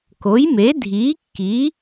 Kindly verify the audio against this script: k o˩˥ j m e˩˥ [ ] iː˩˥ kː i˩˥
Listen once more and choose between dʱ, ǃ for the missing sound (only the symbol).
dʱ